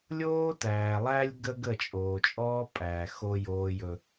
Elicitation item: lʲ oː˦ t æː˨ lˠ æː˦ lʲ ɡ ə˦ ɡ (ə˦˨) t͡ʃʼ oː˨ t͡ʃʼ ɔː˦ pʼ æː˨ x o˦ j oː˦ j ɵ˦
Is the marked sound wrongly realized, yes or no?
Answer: no